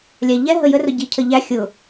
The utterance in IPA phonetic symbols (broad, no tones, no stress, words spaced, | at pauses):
lʲæʎɛ ɦəjə rʊɟi cʰəʎæ xʲʊ